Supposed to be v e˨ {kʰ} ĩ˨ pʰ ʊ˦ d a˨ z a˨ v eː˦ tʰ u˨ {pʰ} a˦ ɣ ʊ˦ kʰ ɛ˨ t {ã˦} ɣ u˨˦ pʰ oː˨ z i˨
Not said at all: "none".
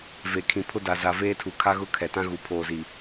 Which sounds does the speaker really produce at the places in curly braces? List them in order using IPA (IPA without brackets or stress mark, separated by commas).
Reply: kʰ, kʰ, ã˦